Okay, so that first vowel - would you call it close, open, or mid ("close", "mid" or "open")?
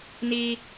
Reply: close